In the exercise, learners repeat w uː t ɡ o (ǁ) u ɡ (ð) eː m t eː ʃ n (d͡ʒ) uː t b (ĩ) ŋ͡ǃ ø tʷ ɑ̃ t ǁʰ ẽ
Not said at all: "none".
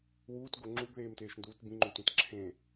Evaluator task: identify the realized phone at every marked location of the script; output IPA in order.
ŋ͡ǁ, ð, d, ĩ

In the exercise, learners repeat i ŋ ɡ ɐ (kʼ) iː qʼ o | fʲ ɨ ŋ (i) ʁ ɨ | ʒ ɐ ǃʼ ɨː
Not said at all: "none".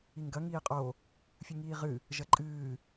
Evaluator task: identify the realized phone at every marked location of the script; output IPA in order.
ŋ, iː

